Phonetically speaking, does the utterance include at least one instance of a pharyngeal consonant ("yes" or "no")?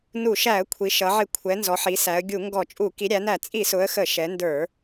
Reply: yes